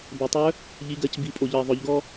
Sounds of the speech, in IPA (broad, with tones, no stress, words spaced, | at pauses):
bɛ˩tˤœ˧˥ | ʎi˩˧ɡɜ˩˧c bi˩˧pʼo˩ʎɜ˩ ðˤœ˩˧ʎɡɔ˥